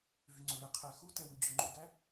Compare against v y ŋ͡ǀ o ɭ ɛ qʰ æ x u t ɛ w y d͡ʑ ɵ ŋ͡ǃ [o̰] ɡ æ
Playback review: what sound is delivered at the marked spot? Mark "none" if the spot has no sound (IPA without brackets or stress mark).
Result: o̰